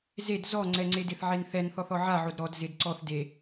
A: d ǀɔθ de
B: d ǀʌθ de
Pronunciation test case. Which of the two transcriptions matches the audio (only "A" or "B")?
A